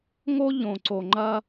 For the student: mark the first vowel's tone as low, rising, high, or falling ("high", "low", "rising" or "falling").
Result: high